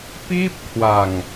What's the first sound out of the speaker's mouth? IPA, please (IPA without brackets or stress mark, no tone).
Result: p